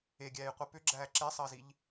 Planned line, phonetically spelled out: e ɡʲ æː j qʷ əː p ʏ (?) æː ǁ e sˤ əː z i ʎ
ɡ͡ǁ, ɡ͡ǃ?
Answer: ɡ͡ǁ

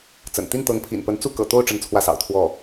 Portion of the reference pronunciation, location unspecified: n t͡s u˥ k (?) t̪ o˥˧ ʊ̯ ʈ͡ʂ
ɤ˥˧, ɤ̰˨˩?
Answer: ɤ̰˨˩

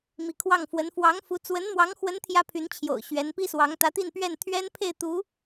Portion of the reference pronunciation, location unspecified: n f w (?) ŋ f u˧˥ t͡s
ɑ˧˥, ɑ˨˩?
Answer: ɑ˧˥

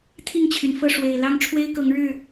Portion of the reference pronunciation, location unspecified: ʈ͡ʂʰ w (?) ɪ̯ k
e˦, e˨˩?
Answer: e˦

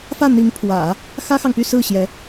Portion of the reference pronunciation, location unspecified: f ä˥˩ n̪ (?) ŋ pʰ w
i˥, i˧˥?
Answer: i˧˥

